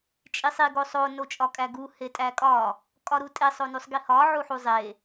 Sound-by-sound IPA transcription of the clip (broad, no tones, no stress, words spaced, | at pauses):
t͡ʃʼisˤi ɡosˤo not͡ʃʼɒkʼæɡu hetʼækʼɒ | kʼɒɾutʼe sˤonusˤɡihɒ ʕuħuzˤe